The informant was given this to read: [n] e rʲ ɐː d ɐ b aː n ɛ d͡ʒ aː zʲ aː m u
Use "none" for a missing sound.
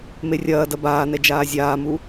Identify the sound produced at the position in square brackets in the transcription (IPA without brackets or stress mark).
m